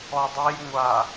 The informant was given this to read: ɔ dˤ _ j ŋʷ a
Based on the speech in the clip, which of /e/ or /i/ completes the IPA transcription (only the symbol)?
e